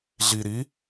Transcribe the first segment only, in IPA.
ɮ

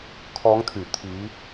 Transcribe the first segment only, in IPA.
kʰ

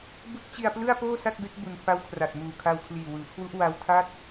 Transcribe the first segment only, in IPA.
b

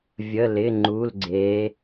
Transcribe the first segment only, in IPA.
vʲ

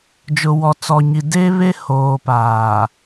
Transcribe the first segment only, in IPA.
d͡ʒ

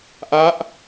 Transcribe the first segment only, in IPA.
ʔ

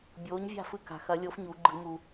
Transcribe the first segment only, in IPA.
bʲ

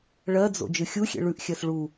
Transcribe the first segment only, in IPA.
ɭ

